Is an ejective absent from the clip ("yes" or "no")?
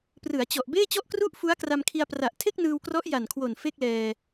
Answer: yes